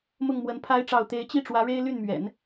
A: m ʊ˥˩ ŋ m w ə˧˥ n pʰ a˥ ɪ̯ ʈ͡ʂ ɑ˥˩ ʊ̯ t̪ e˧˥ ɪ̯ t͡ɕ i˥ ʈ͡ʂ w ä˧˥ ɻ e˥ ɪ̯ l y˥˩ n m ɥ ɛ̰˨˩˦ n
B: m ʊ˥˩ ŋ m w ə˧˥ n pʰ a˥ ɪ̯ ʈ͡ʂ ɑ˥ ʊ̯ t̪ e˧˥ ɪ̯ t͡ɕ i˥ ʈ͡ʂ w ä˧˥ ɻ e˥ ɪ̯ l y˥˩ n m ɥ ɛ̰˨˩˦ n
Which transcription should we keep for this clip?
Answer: A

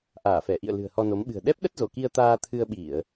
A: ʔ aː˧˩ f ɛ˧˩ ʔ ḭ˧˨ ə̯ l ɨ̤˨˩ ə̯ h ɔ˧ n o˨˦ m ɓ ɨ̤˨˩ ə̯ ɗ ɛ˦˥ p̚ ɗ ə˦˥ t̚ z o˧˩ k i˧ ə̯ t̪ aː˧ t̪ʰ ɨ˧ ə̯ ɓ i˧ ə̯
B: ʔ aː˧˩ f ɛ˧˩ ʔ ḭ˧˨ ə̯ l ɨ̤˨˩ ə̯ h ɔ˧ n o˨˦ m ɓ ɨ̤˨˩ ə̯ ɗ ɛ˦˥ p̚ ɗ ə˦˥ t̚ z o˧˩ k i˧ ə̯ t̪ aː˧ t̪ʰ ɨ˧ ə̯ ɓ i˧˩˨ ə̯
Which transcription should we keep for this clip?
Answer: B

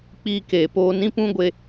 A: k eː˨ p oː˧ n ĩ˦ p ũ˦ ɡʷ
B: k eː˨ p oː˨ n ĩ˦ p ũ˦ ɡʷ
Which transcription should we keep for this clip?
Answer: A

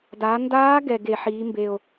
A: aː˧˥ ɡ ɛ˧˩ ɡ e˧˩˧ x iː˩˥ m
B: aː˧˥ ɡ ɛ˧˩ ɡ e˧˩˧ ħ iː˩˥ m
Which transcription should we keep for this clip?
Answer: B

